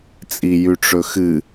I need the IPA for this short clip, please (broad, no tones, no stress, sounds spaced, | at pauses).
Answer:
t͡sʼ i j ʉ ʈ͡ʂ ɵ x ɨ